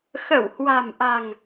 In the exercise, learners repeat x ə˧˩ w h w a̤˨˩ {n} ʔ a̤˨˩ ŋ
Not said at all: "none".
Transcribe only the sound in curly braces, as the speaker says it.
m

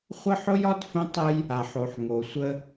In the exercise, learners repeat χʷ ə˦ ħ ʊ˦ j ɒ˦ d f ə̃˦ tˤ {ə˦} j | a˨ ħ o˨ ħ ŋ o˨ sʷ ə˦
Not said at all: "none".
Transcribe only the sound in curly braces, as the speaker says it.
ə˦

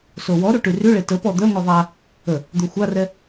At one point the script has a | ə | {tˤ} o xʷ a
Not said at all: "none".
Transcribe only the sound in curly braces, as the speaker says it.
d̪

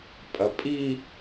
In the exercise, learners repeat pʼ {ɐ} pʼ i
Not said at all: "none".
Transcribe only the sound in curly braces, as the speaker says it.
ɐ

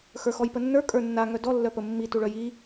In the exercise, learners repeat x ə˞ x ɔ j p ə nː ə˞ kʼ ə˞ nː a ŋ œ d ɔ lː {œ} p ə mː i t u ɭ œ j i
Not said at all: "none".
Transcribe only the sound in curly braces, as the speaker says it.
œ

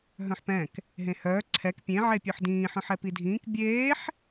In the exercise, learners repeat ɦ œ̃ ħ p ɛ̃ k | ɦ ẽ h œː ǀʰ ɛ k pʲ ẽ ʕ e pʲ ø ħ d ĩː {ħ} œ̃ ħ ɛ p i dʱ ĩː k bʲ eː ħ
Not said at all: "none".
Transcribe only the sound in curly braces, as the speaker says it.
ħ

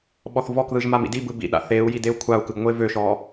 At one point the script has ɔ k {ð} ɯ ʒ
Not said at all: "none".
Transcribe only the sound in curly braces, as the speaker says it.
ð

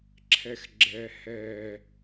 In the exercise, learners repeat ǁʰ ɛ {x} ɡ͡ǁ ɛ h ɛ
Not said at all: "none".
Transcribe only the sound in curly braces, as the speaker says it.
x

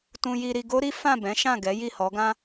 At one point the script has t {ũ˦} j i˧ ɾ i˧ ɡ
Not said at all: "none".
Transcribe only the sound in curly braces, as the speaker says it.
ũ˧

